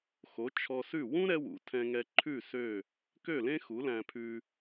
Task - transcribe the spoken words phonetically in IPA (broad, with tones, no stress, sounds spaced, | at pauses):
x o˩˥ t͡ʃʰ ɔ˧ s ʉ˥˩ w ũ˥ ɾ ɛ˥ w ṵ˩˥ tʰ ɛ̃˧ ŋ ɛ˧ ǃʰ ʉ˥˩ s ø˥˩ | k ø˥˩ l ẽ˥ x u˩˥ l æ̃˧ pʰ ʉ˧